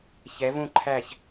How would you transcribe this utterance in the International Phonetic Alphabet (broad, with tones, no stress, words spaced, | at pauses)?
çɛ˧˥vũ˥˧ǃʰæ˥˧ç